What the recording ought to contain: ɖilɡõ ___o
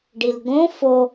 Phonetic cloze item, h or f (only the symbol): f